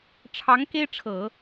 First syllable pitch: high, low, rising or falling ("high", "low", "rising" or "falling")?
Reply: rising